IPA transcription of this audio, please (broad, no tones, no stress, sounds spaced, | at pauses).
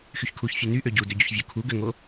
x y ç kʰ u ç fʲ u n y ʔ ø ɟ u d ø ɟ o ç vʲ o kʰ u ɡ ø ŋ o